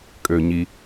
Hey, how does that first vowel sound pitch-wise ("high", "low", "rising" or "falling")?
low